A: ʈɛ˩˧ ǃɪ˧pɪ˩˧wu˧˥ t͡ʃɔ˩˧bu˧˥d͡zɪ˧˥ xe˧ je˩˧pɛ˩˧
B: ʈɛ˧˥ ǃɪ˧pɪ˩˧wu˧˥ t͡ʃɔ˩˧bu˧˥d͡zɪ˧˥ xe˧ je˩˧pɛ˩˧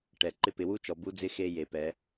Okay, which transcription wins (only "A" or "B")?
A